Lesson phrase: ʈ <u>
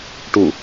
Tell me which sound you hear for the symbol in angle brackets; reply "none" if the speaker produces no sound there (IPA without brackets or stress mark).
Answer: u